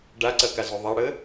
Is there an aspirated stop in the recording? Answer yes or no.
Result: no